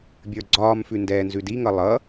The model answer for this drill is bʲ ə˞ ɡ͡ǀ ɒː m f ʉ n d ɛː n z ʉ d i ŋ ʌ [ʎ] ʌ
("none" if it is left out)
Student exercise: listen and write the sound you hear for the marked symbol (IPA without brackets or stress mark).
lˠ